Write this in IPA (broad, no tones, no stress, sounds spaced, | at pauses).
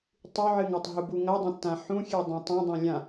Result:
tˤ ʉ ʕ ɨ ŋ a tˤ ɦ u b u ŋ ɐ dˤ ɐ̃ tː ã ħ ũ xʲ e dˤ ã tˤ ɐ̃ dˤ ã lʲ ã